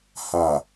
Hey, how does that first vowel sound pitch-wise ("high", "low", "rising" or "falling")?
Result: low